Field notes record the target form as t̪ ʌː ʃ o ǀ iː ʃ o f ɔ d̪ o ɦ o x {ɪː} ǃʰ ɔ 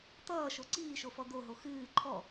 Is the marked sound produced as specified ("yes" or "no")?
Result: no